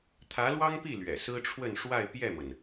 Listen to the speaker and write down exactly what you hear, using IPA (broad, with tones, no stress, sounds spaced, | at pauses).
t̪ʰ ä˧˥ l w ɑ˥ ŋ p i˥˩ l ɥ ɛ̰˨˩ s ɹ̩˥ ʈ͡ʂʰ w ə˥˧ n ʂ w a˥˧ ɪ̯ p j ɛ˥˩ m ə˩ n